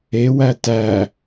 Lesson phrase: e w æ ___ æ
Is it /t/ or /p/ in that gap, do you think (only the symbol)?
t